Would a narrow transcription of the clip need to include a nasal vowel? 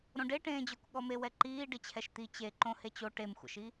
yes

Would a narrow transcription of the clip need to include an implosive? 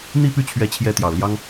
no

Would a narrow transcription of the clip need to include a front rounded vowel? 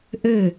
yes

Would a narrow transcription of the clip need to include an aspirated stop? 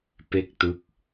no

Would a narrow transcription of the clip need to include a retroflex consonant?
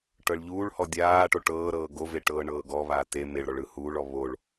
yes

